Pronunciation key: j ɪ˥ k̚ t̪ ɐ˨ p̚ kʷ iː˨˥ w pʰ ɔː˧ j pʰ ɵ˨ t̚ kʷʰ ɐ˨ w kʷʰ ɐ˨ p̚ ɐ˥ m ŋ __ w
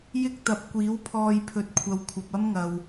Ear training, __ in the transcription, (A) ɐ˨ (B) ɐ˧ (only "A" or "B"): A